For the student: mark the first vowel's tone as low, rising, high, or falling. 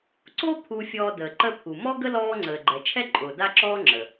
high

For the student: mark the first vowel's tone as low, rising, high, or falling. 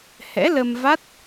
rising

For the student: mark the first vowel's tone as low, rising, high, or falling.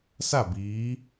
falling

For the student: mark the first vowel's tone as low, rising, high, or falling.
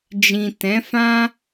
low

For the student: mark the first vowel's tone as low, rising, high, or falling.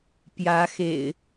rising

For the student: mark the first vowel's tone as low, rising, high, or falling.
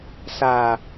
low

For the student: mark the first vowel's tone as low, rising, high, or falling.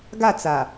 falling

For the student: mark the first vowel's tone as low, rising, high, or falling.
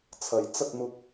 rising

